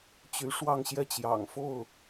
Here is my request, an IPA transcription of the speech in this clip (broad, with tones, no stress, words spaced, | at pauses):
t͡ɕy˧˥ʂwɑ˥˧ŋɕjɛ˥˩t͡ɕjɑ̰˨˩ŋ fo˥˩ʊ̯